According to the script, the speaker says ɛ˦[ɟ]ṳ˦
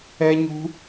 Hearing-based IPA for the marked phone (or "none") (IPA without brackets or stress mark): ɲ